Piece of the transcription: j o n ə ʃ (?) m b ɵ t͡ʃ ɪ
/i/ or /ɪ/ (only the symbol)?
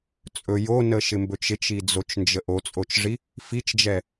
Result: ɪ